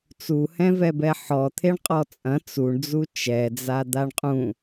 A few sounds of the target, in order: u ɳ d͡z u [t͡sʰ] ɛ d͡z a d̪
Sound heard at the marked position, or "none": t͡ʃ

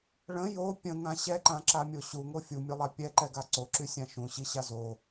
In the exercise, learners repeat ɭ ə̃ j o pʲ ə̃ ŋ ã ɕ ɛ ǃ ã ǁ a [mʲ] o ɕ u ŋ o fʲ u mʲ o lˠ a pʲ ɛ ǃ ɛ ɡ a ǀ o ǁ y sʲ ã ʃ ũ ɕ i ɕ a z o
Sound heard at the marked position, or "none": mʲ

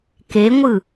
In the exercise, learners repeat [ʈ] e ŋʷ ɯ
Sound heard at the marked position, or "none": k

